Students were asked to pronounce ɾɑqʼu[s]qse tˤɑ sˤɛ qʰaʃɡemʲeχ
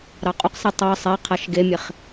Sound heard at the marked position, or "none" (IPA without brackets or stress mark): none